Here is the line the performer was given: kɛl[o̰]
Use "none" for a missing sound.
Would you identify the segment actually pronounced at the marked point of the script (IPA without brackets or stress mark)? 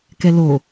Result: o